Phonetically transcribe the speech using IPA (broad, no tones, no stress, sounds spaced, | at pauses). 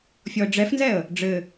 fʲ ɔ ə̯ ɖ͡ʐ ɛ f n z ɛ ə̯ | ɖ͡ʐ ɘ